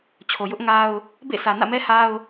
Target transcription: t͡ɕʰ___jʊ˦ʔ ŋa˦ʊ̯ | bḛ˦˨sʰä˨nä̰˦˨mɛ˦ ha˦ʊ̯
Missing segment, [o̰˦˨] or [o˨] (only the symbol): o˨